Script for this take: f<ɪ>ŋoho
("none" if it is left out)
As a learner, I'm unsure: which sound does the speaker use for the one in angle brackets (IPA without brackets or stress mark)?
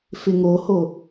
ɪ